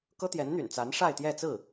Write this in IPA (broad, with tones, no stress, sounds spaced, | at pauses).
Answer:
k ɤ˥ t̪ j ɛ˧˥ n n̪ y̰˨˩ n t͡s a˧˥ n ʂ a˥˧ ɪ̯ t̪ j ɛ˥˧ t͡s ɹ̩˥˩